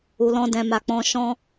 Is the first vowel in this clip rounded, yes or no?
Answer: yes